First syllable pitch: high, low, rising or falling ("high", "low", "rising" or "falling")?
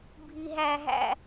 low